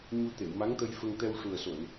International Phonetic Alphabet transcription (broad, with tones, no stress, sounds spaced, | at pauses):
ɲ u˧ t̪ e˨˩˨ w m a˧˥ ŋ t̪ ə˧ j f ə˧ ŋ t̪ ɛ˧ w ʂ u˨˩ ə̯ s o˨˩˨ n